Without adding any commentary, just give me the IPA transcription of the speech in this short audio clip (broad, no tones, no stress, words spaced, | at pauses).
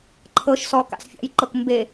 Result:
ǃʰɤʃsɔ ka̰sfʲa̰jǃɤk mbe